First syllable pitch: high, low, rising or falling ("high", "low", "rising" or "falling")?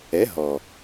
rising